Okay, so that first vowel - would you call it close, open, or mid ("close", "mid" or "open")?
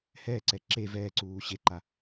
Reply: mid